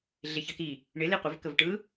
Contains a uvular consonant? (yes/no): yes